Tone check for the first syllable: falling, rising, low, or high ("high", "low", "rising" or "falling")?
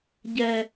low